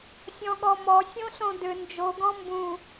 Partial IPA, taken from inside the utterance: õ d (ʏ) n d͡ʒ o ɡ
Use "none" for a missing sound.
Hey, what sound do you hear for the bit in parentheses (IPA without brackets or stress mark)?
ʏ